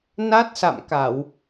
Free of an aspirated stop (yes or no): yes